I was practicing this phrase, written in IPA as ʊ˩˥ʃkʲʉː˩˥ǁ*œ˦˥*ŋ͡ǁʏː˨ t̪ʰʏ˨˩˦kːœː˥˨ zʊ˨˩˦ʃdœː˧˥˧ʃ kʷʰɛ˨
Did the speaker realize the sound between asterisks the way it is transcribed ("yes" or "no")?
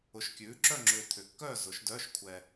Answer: no